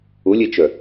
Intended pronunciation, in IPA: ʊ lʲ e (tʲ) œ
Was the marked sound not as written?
yes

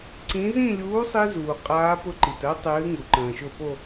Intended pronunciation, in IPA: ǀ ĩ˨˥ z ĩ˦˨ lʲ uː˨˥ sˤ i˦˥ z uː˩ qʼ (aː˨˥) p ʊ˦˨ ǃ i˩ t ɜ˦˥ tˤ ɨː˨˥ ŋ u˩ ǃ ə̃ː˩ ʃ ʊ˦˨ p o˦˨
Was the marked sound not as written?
no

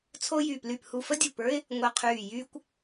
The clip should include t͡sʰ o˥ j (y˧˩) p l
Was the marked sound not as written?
no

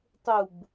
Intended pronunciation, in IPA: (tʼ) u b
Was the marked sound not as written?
yes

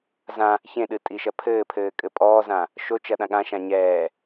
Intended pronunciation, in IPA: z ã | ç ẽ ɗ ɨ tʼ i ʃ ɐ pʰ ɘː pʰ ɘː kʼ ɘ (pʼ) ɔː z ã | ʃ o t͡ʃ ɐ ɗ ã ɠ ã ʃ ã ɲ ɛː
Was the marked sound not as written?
no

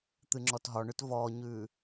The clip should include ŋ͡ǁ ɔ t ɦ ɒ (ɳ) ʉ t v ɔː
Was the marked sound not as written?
no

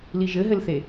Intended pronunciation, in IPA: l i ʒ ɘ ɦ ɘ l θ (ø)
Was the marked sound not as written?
yes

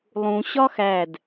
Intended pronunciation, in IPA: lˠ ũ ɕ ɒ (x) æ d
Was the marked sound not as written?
no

